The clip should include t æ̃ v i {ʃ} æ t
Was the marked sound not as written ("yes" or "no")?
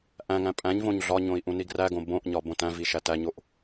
no